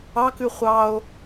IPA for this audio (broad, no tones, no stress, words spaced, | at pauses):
ɑkʉ χʷɑo̯